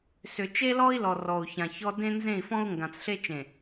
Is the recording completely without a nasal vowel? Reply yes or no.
no